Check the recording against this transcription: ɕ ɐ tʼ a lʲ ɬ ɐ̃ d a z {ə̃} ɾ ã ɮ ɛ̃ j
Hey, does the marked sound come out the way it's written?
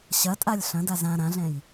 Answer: no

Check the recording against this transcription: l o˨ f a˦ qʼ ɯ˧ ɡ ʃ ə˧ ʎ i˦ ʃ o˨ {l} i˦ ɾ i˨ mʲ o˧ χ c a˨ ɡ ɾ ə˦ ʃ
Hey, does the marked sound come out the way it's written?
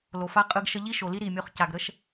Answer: yes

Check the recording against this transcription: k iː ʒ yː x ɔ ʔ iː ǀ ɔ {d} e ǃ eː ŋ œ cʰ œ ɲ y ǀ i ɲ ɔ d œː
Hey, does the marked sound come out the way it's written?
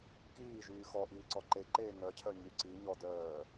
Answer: no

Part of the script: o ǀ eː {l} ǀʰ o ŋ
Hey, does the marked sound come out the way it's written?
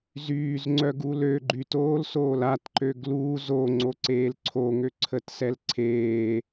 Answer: yes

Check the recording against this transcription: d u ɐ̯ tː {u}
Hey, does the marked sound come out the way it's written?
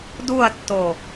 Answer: no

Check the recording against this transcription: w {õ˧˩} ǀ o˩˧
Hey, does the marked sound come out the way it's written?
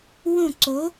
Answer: yes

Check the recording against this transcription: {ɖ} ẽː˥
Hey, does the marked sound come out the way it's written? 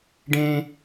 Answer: yes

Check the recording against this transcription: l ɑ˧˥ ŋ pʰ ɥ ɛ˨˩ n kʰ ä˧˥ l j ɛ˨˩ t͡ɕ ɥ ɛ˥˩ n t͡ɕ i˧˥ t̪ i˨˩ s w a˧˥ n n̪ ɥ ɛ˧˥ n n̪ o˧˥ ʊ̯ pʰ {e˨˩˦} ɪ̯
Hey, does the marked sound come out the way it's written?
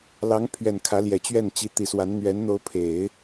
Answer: yes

